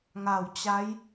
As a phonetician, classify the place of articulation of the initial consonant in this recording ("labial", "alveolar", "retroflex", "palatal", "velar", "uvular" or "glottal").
velar